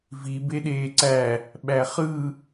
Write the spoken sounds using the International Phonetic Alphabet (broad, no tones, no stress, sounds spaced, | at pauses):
v i b e ɗ eː ǀ æ | ɓ æ χ ɯ